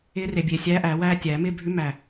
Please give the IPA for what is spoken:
ɪː˧˥ r e˨˩ bʲ e˨˩ sʲ æː˧˥ ʔ æː˨˩˦ w æː˥˧ tʲ æː˨˩˦ m ɪː˥˧ bʱ ʉ˧˥ m æ˨˩

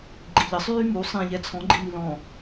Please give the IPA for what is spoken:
ɡ͡ǃ i ʎ ə sˤ yː m u sˤ ĩ ʎ ɛ t͡sʰ ɔ̃ ɡ͡ǃ i m i l ɔ̃

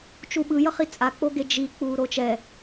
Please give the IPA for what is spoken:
t͡ʃ u ɓ ɯ j ʌ χ i t͡sʼ a k͡p o ɡ e d͡ʒ i k͡p uː ɾ o t͡ʃ ɛ

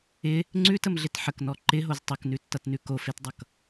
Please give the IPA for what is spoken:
ɪ | ŋ͡ǀ ʉ t ə m ɮ ɪ t ħ ə k n ɔ ǃ ɪ ɦ o z tˤ o k n ʉ tː ʌ t n ʉ k o f e t dˤ ʌ k

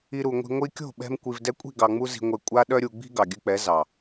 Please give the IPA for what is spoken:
i˧ ɾ u˨ ŋʷ i̤˧ ŋʷ i˧ kʲ o̤˦˨ ɓ ɛ̤˧ m kʷ i˨ v d ɛ˧ kʷʼ i̤˦˨ ɡ ɑ˧ ŋ͡m u˦ z i̤˧ ŋʷ e˧ kʷʼ a˦ ɗ œ˦ ɾʲ u˧ ɡ͡b i̤˦ ɡ ɑ˨ ɡʲ ʉ˧ k͡p ɛ˨˦ z ɑ˨

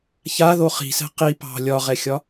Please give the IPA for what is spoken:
ç a ð o χ i̤ s ɛ̤ q i p ɑ̤ lʲ ɒ ʁ ɛ xʲ ɒ

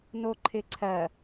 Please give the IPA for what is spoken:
n o ǃʰ ɪ ǀʰ ɜ

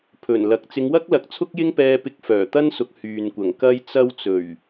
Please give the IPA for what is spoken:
pʰ ɵ˨˩ n l ɐ˨ k̚ t͡s ɪ˨˧ ŋ w ɐ˥ k̚ l ɐ˨˥ k̚ t͡sʰ ʊ˥ k̚ j ɪ˥ ŋ p ɛː˧ p ɪ˧ k̚ f œː˨˩ t̪ ɐ˥ n s ʊ˨˥ k̚ h yː˨ n kʷ ɐ˨˩ ŋ k ɐ˥ j t͡s ɐ˥ w t͡s ɵ˨˩ ɥ

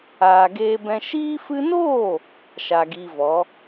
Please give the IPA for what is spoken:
aː˨ ɡ eː˧ b ɛ̃˧ ʃ iː˧ f ɨ˧ n oː˦˨ | ʃ a˨ ɡ iː˧ v ɔ˨˦

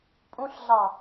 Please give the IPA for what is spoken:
pʼ ũ ɬ ɮ ɑ

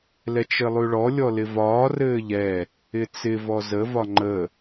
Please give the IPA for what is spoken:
l ɛ t͡ʃ ɘ lˠ ʉ ɭ ɔ lʲ ɔ l ɪ v ɒː r ɘː ʎ ɛ | ɪ t͡s ɪ v ɔ z ə v ɒ ŋ͡ǃ ə

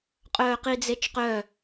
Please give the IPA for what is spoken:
qʼ œː q i d͡z e t͡ʃ q œ

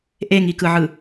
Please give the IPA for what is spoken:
ʔ e ŋ i k ɯ ʕ ɯ

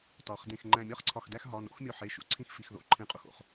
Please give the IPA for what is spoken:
t ɒ˩˧ χ d ẽ˧˩ x ŋ͡ǃ æ̃˧˩ mʲ ɒ˥˧ χ ǀʰ ɒ˧˩ x d æ˥˧ x ɦ ɒ˩˧˩ n o̰˥˧ x mʲ o˧˩ ħ e˩˧˩ ʃ ṵ˧˩ ǀʰ ĩ˥˧ x f i˩˧˩ x ð o̰˩˧˩ ǃʰ ẽ˧˩ qʼ u˧˩ x o̰˧˩ χ

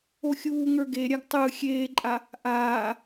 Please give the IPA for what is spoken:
o xʲ uː ŋ ə˞ ɡ e ɾʲ a ɡ tˤ ɯ xʲ eː ǃʼ a | ʔ aː

